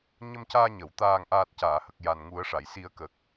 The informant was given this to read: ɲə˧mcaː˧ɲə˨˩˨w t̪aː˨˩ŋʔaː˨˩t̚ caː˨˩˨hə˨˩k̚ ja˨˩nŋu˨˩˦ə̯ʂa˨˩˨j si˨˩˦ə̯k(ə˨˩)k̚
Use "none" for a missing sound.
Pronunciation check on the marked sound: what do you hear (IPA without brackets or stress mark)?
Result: ə˨˩